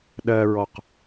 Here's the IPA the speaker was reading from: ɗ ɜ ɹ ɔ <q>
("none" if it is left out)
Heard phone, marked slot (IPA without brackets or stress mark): q